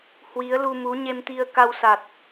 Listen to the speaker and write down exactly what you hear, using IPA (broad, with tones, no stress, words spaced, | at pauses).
hwi˨˦ə̯lu˧mu˨˦ ɲe˧mt̪i˧ə̯ ka˧wsa˨˩t̚